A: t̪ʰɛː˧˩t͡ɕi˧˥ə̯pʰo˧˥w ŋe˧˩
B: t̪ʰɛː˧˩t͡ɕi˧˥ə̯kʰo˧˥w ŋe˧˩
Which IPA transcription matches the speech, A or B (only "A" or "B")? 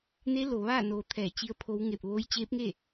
A